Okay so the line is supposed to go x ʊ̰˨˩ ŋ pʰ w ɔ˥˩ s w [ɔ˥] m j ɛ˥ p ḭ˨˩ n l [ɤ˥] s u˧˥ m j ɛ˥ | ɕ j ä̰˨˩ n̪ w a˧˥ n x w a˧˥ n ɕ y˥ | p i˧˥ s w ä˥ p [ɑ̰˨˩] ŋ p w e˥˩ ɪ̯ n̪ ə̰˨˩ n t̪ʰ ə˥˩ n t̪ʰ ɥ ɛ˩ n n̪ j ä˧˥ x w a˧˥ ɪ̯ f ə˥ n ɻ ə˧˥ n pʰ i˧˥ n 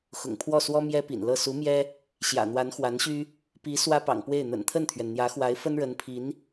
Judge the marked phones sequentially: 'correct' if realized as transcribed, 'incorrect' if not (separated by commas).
correct, incorrect, correct